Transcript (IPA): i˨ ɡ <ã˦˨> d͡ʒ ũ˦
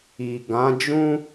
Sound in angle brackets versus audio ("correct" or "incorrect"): incorrect